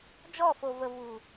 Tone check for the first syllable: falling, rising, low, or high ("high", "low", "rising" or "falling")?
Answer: falling